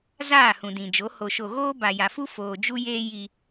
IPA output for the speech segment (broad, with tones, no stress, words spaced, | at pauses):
zaː˦˨hũ˨dĩ˨d͡ʒo˨˦ ho˨ʃo˨ɣoː˦ ba˨ja˨fu˦ foː˨d͡ʒu˦jeː˦ ji˦